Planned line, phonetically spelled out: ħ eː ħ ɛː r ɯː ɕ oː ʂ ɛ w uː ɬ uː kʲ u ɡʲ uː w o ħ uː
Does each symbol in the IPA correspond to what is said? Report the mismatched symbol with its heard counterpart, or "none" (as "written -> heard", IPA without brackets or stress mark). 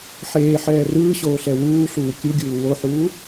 ʂ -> ɬ